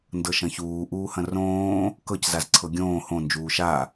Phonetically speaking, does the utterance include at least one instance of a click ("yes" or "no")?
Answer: yes